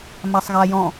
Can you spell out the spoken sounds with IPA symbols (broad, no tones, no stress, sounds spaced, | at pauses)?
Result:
m a sˤ ɣ a j ɔ̃